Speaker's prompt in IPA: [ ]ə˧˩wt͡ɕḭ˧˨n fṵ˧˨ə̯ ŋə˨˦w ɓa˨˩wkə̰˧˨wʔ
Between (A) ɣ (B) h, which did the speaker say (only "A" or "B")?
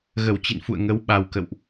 A